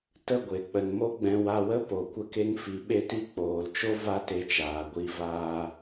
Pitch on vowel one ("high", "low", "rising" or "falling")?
falling